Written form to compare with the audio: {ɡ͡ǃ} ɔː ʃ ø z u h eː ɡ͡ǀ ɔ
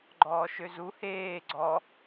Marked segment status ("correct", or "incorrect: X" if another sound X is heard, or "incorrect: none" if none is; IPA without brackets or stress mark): correct